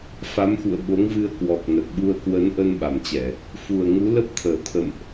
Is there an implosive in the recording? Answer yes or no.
yes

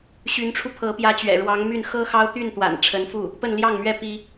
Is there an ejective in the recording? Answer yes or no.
no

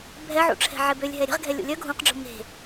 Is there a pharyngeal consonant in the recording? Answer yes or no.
yes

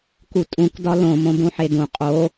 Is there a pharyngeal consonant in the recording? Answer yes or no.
yes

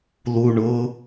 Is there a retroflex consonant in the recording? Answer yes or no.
yes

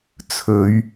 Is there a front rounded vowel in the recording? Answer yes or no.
no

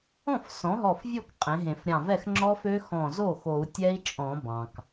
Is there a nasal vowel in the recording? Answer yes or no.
yes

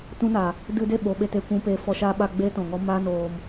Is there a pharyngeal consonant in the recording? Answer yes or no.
no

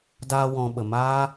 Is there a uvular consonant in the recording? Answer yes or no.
no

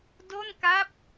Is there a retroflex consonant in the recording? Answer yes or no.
no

